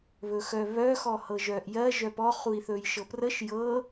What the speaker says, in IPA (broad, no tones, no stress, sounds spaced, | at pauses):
β ɵ x œ β œ x ɔ h ɤ ʒ œː ʔ j ɜ ʒ œ p ɔ χ u i̯ θ ɵː j ʃ ɤ p r ə ʃ j ɤ